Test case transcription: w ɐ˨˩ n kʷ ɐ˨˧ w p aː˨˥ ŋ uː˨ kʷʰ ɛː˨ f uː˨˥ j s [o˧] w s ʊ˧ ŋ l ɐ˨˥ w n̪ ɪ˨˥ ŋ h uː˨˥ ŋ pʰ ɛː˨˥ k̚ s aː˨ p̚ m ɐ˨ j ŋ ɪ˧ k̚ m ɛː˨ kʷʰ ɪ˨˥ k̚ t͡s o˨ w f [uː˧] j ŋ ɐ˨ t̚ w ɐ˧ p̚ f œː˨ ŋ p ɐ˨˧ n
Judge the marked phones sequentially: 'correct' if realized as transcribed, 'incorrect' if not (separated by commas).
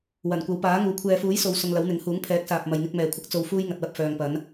incorrect, correct